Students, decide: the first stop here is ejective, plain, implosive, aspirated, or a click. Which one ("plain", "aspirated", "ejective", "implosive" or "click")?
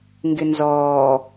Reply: plain